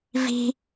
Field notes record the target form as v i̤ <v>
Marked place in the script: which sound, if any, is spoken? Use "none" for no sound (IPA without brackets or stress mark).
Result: none